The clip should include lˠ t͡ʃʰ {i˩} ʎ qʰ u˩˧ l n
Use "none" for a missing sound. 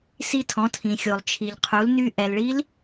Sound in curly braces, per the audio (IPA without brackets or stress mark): i˩